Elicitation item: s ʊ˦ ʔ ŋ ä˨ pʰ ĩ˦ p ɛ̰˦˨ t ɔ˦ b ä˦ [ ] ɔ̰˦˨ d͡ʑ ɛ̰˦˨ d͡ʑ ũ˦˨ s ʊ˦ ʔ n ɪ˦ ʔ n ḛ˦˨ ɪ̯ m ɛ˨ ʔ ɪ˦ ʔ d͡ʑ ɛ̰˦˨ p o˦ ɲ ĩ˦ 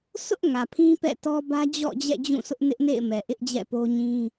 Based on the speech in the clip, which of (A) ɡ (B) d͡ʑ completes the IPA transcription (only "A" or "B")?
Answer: B